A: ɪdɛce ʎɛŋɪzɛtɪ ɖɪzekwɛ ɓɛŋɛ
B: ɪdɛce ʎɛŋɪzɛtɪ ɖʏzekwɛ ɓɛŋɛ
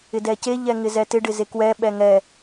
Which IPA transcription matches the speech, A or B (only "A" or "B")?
A